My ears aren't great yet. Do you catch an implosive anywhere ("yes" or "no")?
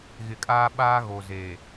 yes